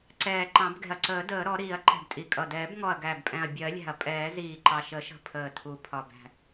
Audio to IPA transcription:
ǀ ɛː˨˩ ǃ ɑ̃˨˩˦ b ɡ ɛ̤˨˩ ɐ̯ ǀ əː˨˩˦ d əː˨˩˦ ɾ ɔ˨˩˦ ɾ iː˨˩˦ ɐ̯ ǃ ɛ̤˨˩ b tʼ i˨˩ kʼ ʌ˨˩ d ɛː˨˩˦ b ŋ ɔ˨˩ ɐ̯ ɡ æ˨˩ b pʼ ɛ̃˨˩ ɐ̯ bʲ ɜ˨˩˦ lʲ æ̤˨˩ ɐ̯ pʼ ɛː˨˩˦ z iː˨˩ ǃ ɑ˨˩ ʃ ə˨˩˦ ʃ ə̤˨˩ pʰ əː˨˩ tʰ u˨˩ pʰ ɒ˨˩ b æ̤˨˩

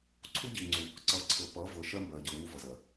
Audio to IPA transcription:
ǀʰ u˦ ɟ i˨ ŋ͡ǀ u˨ | ǀ ʌ˨ ǀʰ ɤ˨ p ʌ˨˦ v ɤ˨ ʃ ɜ˦ m b ɜ˨ ɟ ɤ˨ ŋ u˦ v ʌ˨ z ɜ˨

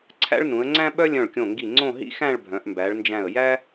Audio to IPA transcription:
ǀʰ æ̰˥ ɭ n ũ˩˧ ə̯ ŋ͡ǀ æ̃˥ ɓ œ˥ lʲ œ̃˧˩ ɭ kʲ õ˧˩ ŋ ɡ i˧˩ ŋ͡ǀ õ˥˧ ɦ ḭ˥ x æ̃˥˧ ɭ bʱ œ̃˩˧ ʔ m b æ˩˧ ɭ n d͡ʒ æ̃˧˩ ə̯ j æ˥

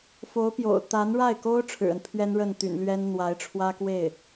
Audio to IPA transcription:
f o˧˥ ʊ̯ p j o̰˨˩ ʊ̯ t̪ a˧˥ n ɻ a˥˩ ɪ̯ k o˥ ʊ̯ ʈ͡ʂʰ ɻ̩˨˩ ə˦ n pʰ ɥ ɛ˥ n ɻ ə˥˩ n t̪ y̰˨˩ n l ɥ ɛ˥ n n̪ w a˧˥ ɪ̯ ʈ͡ʂʰ w ä˥ k w e˥˩ ɪ̯

